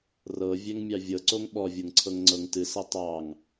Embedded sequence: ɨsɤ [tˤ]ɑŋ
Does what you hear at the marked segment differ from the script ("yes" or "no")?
no